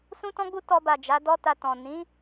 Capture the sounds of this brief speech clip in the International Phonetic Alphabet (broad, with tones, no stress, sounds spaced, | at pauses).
s ũ˦ t ɔ̃˦ ɡ͡b u˦ t ɔ˧ b a˨ d͡ʒ a˨˦ d ɔ˦ t a˧ t ɔ̃˨ n ĩ˨˦